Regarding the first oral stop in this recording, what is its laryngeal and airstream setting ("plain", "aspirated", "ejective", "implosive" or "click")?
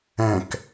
plain